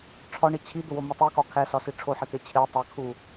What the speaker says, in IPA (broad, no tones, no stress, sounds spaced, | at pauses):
ʈ͡ʂʰ ɒ ɳ i t͡ɕʰ i d̪ o w o m u tˤ i k ɒ kʰ æ s ɒ s i ʈ͡ʂʰ o ħ e t̪ e t͡ɕʰ e tˤ æ kʰ u